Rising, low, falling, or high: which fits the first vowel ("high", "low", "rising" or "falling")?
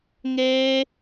high